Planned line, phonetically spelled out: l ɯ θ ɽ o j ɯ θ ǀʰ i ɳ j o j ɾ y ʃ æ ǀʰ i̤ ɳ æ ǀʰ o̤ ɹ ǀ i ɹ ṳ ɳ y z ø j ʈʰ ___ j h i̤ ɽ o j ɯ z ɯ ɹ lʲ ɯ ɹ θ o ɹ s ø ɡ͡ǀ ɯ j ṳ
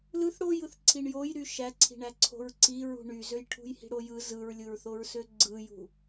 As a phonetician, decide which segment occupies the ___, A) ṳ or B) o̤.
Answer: A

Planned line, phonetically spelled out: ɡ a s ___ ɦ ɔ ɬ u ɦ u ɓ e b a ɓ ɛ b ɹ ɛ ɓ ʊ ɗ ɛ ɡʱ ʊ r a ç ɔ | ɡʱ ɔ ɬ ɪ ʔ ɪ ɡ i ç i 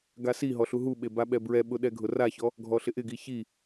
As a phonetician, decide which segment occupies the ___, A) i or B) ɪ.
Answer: A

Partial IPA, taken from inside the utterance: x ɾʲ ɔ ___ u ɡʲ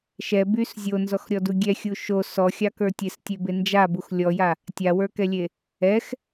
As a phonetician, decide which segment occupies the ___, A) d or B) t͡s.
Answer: A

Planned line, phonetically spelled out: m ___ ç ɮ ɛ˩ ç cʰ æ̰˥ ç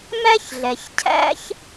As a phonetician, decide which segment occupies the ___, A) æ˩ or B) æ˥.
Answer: B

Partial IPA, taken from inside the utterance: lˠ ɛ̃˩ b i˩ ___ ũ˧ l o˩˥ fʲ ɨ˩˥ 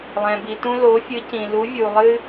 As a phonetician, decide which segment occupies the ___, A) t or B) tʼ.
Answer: A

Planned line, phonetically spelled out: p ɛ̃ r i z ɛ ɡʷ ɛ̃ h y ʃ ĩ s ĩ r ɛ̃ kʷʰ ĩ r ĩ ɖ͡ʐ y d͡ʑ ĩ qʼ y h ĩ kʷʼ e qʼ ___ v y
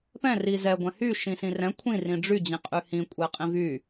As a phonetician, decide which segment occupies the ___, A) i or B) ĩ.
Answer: B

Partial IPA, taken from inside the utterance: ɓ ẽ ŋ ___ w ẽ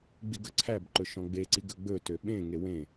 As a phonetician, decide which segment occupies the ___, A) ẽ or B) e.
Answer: B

